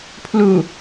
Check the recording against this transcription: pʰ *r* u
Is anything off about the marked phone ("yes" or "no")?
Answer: yes